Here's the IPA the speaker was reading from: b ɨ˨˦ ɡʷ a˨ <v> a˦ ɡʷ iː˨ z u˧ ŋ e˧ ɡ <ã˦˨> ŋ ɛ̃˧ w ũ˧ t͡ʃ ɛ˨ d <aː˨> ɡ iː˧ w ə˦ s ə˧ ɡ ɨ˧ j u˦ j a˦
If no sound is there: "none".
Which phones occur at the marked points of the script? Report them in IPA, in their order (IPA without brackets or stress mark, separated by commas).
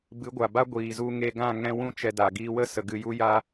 b, ã˦˨, a˨